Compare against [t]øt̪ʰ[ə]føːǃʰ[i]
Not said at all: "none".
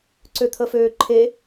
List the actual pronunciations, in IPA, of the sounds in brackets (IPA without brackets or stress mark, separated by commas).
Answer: ǀ, ə, e